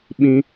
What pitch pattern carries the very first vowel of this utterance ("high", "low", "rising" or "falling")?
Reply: high